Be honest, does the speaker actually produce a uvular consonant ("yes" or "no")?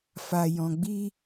no